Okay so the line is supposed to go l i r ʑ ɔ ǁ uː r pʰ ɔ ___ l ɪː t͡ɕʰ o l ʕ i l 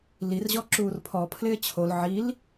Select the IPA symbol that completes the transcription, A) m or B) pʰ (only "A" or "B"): B